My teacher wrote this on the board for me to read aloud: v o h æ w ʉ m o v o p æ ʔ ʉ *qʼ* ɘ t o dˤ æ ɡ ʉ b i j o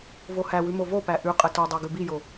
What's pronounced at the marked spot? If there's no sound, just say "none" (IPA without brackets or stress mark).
qʼ